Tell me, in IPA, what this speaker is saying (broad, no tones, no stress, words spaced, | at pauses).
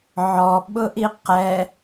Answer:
ʕɔɓʊʔi qɛ